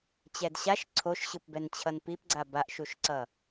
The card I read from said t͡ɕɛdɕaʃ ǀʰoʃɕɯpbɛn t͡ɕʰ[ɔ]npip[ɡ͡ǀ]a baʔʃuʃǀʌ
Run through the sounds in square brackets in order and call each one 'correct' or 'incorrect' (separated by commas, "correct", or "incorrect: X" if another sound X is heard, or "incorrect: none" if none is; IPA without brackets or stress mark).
incorrect: ʌ, correct